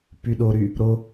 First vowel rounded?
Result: yes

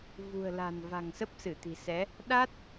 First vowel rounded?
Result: yes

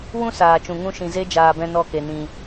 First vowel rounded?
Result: yes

